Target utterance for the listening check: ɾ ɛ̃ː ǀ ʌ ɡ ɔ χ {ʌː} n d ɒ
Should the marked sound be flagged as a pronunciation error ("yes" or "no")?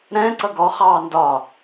yes